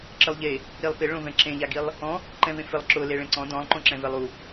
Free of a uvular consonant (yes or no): yes